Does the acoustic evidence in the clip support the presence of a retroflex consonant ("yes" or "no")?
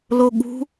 no